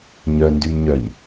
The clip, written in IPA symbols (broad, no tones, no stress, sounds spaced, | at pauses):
ɲ œ n d y m ɲ œ ɲ